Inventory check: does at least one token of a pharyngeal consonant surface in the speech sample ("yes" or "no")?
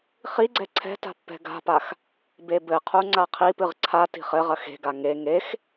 no